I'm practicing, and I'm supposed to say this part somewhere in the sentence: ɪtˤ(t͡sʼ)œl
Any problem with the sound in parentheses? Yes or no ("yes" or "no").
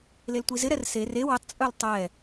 no